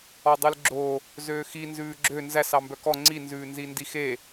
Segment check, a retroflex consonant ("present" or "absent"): absent